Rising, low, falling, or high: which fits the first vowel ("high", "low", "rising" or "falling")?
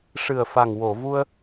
low